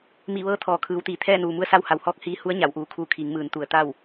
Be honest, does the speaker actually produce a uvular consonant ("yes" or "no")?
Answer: no